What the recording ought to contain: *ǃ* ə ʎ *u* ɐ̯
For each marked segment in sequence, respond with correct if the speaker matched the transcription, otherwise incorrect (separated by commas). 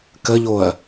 incorrect, incorrect